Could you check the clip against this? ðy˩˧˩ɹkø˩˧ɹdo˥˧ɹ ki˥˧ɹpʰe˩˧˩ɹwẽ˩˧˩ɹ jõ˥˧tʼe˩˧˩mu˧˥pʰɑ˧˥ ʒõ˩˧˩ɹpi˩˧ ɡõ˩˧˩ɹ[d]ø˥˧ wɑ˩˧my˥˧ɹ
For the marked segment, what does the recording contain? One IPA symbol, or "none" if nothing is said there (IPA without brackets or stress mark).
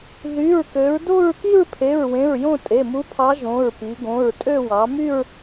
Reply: tʼ